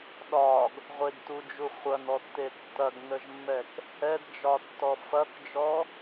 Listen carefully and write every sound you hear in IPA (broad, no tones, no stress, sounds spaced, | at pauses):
ɗ ɒ ɡ | ʁʷ e ɡ t u d͡ʒ u χʷ ɐ n ɔ tː e tː ɐ ɡ n ə ʒ mː ɛ k | ɛ d d͡ʒ ɒ tː ɔ f ɐ k d͡ʒ ɔ